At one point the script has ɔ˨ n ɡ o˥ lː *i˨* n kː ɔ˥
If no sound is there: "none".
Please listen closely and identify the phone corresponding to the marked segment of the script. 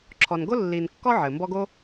i˨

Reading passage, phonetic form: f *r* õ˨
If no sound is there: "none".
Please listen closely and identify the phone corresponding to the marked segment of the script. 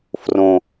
r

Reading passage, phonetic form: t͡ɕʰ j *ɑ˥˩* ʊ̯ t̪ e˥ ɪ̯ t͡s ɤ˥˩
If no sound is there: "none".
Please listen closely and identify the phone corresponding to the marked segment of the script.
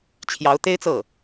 ɑ˧˥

